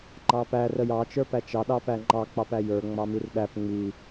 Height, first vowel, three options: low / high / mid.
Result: low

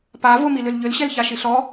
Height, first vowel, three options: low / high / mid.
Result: low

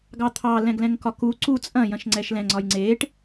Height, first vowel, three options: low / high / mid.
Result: low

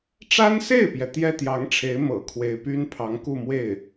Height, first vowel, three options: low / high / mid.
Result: low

